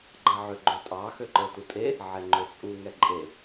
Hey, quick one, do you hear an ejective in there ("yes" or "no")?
yes